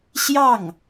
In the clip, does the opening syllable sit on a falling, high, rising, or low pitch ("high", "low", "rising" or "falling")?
falling